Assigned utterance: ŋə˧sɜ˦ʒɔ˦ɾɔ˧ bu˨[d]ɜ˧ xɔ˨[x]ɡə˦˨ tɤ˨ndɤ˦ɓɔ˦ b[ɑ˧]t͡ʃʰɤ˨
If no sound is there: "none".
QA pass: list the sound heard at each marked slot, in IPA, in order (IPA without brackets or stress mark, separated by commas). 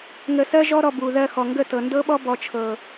ð, ŋ, ɔ˧